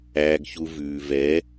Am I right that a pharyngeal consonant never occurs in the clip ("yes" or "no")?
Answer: yes